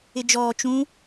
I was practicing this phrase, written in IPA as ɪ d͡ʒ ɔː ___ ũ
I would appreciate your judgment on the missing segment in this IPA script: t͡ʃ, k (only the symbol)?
t͡ʃ